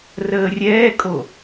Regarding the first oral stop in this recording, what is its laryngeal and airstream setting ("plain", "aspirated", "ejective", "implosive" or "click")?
ejective